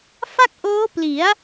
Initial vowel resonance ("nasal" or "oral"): oral